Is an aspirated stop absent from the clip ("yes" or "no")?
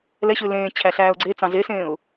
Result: no